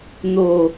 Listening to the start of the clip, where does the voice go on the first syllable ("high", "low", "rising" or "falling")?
falling